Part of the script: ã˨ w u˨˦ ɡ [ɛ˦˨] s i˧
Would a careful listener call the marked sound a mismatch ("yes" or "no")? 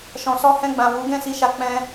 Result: yes